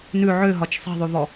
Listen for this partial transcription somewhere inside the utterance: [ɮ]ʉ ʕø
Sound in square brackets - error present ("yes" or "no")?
yes